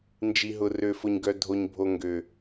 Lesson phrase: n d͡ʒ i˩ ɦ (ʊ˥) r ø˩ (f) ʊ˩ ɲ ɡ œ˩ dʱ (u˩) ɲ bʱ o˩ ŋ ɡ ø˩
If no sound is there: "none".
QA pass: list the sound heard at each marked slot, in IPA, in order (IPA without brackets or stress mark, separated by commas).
ʊ˩, f, o˩